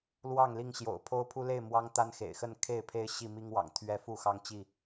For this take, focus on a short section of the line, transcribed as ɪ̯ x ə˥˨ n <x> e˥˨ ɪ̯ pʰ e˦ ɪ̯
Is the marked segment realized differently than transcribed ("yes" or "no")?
yes